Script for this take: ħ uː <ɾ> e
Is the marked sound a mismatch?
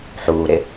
no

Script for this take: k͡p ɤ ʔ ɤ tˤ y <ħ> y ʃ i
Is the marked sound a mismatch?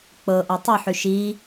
no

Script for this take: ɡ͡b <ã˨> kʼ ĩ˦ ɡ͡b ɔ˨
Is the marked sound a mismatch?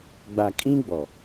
yes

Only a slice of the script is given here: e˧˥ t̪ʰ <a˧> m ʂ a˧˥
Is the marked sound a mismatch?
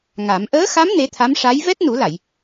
yes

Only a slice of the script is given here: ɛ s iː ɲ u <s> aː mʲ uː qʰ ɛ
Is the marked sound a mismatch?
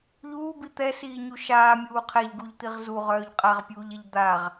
yes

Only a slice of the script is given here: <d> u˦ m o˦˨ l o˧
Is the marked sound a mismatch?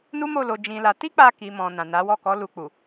yes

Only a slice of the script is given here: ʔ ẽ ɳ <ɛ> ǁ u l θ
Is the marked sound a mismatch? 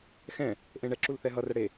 no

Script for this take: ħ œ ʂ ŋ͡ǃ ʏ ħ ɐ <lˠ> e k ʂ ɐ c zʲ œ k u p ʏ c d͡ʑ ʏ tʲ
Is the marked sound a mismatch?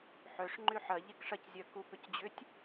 yes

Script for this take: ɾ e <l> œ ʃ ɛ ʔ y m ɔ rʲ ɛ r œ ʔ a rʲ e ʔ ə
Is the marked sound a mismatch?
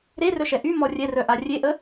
yes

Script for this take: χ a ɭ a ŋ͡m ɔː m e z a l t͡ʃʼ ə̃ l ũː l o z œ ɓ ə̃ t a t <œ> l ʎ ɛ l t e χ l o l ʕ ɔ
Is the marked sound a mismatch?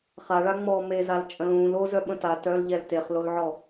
no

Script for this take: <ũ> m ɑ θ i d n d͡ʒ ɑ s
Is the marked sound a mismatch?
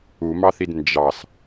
yes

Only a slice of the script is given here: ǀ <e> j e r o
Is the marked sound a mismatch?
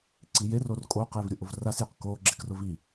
yes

